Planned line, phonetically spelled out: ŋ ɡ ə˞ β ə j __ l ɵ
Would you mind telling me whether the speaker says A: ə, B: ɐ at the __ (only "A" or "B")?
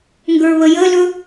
A